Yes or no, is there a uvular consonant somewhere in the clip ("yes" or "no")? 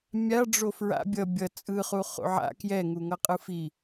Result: yes